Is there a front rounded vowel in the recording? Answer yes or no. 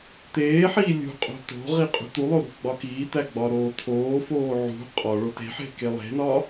no